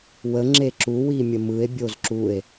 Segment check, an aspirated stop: absent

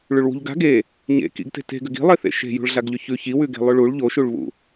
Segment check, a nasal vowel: absent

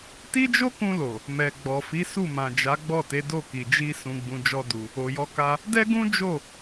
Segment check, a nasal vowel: present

